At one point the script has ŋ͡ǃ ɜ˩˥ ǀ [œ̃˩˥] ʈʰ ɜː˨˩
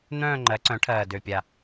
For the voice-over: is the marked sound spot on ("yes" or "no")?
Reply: yes